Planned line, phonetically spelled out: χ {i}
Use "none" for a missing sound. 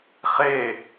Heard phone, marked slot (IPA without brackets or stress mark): e